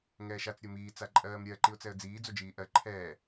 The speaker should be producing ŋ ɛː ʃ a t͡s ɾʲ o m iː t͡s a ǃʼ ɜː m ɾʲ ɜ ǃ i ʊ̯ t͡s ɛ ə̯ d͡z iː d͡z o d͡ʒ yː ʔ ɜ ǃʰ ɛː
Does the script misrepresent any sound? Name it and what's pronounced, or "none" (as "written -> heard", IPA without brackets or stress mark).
yː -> iː